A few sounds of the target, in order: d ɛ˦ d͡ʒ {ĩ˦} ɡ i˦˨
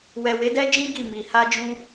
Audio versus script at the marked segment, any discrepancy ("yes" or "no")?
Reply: no